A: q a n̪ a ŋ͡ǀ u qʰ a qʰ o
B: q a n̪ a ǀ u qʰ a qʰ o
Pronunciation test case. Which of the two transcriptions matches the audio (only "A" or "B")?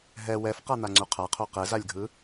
A